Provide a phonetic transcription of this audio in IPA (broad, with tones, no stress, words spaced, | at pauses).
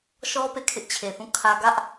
ʃɔ˦ pe˦˨kʰɪ˦ʔt͡ɕʰe˨θũ˦˨ kʰä˦ ɡä˦ʔ